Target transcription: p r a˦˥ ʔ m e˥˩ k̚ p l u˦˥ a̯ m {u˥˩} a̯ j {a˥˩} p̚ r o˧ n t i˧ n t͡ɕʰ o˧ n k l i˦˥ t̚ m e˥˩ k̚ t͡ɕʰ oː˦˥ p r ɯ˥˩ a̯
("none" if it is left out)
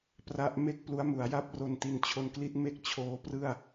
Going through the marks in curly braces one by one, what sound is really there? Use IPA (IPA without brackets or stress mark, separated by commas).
u˩˦, a˥˩